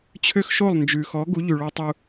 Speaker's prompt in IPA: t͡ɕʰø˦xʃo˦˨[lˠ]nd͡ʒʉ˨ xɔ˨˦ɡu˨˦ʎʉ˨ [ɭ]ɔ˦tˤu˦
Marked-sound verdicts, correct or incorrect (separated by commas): correct, correct